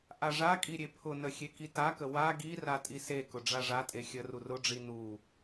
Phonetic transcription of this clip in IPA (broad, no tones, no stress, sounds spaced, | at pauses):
ʔ a ʐ a kʼ i ɾʲ e pʰ ʊ n ə xʲ e k i t a k ə w a ɡ i r a tʼ i s e k ʊ ɖ͡ʐ a ʐ a tʼ e xʲ ə r u r ʊ ɖ͡ʐ i n u